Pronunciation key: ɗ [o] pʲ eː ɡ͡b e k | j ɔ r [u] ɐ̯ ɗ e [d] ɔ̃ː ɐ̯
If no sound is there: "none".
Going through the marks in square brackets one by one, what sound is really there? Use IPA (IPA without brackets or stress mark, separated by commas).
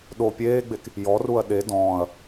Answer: o, u, d